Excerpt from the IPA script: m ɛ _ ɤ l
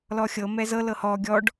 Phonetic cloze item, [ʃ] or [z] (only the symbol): z